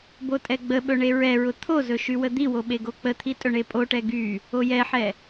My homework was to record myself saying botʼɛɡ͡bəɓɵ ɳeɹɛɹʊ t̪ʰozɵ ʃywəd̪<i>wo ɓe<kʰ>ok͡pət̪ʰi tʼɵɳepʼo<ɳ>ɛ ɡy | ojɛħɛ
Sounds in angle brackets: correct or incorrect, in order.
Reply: correct, incorrect: ɡ, incorrect: ʈ

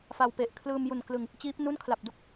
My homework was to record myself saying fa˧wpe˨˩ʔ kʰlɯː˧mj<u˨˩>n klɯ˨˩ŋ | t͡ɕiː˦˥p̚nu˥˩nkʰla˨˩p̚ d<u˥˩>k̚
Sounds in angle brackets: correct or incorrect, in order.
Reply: correct, correct

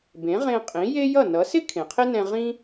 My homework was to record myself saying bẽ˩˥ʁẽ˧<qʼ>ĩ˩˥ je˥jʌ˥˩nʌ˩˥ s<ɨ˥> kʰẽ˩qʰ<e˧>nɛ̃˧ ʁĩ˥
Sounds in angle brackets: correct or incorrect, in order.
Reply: correct, incorrect: ɪ˥, incorrect: e˥

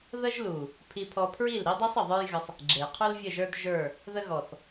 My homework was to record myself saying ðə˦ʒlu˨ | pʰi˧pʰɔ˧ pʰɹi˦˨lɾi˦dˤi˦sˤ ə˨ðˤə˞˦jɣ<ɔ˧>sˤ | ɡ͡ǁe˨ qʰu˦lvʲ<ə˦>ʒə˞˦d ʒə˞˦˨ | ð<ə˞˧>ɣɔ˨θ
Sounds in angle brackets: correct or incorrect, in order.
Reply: incorrect: ə˧, incorrect: ə˦˨, incorrect: ə˧

